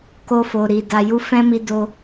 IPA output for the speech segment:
k o˧ f o˨ ɾ i˨ d a˨ j u˧ f ɛ̃˦ m i˧ d o˧

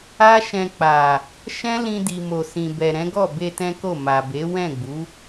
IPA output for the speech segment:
a˦ ʃ ɛ̃˧ k͡p a˨ | ʃ ɛ̃˦ l ĩ˧ d i˨ m o˨ s ĩ˨ b ɛ˨ ɾ ɛ̃˨˦ ɡ ɔ˦˨ b e˧ t ɛ̃˦ k o˦˨ m a˨ b e˨˦ w ɛ̃˦˨ ɡ͡b u˨˦

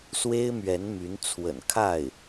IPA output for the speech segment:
s w e˥ ɪ̯ m ɥ ɛ˧˥ n m y˧˥ n t͡sʰ w ə̰˨˩ n kʰ a˥˩ ɪ̯

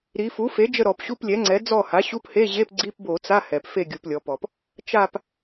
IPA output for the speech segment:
ɾ i˩˧ f u˩˥ f e˩˥ d͡ʒ ə˦˨ ɾ ɔ˧˩˧ p ɕ u˧˥˧ p lʲ ɛ˩˥ ŋ͡ǀ ɛ˩˥ d͡z ɔ˦˨ h a˩˥ ɕ u˧˥˧ p h e˧˥˧ ʑ e˧˥˧ p ɡ͡ǀ i˧˥˧ p b o˧˩˧ t͡s a˧˥˧ h ɛ˩ p f e˦˨ ɡʲ u˩˧ p lʲ ɔ˩˧ p ɔ˩ p | t͡ʃ a˦˨ p

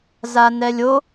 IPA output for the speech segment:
z a n ɛ lʲ o

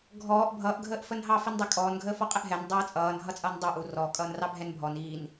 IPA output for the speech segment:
ɡʱ ɔː ʔ bʱ ʌː ʔ ɡʱ əː ʔ f ə n ɦ ɑ f i n dˤ ɛ kʼ ɔː n ɡʱ əː f ɔ qʼ ɪ ʔ ɦ ɛ n dˤ ʌː t͡sʼ ʌː n ɦ ʌ t͡sʼ ʌː n dˤ u ʔ uː r ɔ kʼ ʌː n r ɑ bʱ ɛ n bʱ ɔ n iː n

